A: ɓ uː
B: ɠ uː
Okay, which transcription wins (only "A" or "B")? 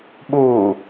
A